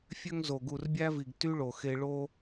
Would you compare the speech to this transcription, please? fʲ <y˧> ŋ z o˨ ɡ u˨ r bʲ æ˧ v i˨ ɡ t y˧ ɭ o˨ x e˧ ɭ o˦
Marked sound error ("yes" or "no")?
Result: yes